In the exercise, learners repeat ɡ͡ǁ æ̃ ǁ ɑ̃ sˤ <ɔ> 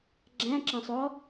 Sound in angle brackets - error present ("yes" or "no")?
no